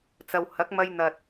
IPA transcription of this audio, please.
t͡s ɐ˨ w h ɐ˨˥ k̚ m ɐ˧ j n̪ ɐ˨ t̚

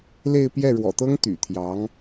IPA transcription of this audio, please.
l e˥˧ ɪ̯ p j ɛ˥˩ ɻ w ɔ̰˨˩ t̪ ɤ˥ ŋ t̪ y̰˨˩ t̪ʰ j ɑ˧˥ ŋ

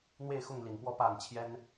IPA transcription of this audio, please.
n̪ w e˥˧ ɪ̯ x ʊ˥˩ ŋ l i˨˩ n p w ɔ˥˧ p a˥˩ n t͡ɕʰ j ɛ˥ n

